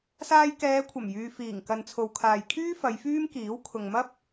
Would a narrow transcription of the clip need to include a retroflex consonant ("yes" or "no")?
no